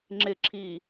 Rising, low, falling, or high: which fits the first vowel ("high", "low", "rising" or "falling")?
low